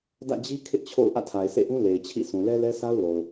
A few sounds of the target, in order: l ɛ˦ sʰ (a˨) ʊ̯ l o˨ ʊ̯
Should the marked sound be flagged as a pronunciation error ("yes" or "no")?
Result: yes